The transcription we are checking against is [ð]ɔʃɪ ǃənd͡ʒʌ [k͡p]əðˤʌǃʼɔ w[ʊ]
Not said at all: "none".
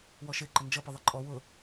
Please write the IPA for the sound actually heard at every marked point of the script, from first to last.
w, p, ʊ

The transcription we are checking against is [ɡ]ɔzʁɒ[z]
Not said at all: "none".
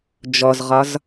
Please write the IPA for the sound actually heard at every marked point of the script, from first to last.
d͡ʒ, z

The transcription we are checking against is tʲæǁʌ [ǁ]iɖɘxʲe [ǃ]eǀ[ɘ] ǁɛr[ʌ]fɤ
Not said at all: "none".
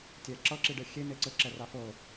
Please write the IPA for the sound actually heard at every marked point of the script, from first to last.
ǁ, n, ɘ, a

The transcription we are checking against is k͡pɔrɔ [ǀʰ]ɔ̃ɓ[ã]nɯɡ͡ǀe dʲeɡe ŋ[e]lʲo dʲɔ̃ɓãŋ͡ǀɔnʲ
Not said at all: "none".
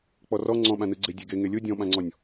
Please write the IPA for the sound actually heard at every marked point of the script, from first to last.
ŋ͡ǀ, ã, e

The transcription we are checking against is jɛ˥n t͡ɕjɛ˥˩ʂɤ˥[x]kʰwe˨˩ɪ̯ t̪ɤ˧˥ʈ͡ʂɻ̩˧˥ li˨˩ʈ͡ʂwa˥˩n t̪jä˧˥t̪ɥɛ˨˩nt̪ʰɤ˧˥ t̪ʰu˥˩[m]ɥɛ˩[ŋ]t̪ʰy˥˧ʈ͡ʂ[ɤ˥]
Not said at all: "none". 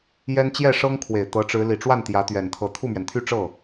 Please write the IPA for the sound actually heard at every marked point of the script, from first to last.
ŋ, m, n, ɤ˥˩

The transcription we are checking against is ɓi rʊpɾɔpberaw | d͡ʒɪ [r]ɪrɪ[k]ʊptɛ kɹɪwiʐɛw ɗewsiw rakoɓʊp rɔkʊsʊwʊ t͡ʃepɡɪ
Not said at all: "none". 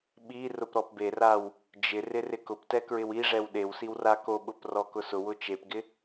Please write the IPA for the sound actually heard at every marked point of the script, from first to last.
r, k

